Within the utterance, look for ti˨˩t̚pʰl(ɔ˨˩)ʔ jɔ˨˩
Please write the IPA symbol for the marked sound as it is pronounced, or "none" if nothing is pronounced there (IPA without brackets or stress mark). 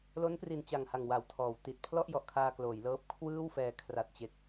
ɔ˥˩